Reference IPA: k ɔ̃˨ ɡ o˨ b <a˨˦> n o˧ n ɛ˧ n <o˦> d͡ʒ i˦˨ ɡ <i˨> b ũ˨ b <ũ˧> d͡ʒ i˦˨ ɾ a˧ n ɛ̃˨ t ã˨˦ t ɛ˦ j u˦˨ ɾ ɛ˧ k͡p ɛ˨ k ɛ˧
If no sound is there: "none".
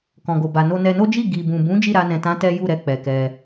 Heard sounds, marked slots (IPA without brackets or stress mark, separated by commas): a˨, o˦, i˨, ũ˨˦